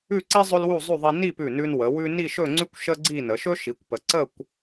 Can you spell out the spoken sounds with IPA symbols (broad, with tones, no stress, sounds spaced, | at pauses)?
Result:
ʉ˥˧ ǀ i˥ zˤ ɵ˥ l w u˥˧ zˤ ʉ˥˧ ðˤ i˧ n i˥˧ p ʉ˧˩ n ʉ˧ n w ə˩˧ w ʉ˥ n i˥˧ ʃ ɵ˥˧ ŋ͡ǀ ʉ˥ kʷ ʃ ə˥ ɡ͡ǀ i˥˧ n ə˩˧ ʃ ɵ˥ ʃ i˩˧ kʷ p ə˩˧ ǀ ə˥˧ kʷ